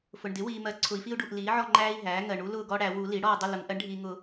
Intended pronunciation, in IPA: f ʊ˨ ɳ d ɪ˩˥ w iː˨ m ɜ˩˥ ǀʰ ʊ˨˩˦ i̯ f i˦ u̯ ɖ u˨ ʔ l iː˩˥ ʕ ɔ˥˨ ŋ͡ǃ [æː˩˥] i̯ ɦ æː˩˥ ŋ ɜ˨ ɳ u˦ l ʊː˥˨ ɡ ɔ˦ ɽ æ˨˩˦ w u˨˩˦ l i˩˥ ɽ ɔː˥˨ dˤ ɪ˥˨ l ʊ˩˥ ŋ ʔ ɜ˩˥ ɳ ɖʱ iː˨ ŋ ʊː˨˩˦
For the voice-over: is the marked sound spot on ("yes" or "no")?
no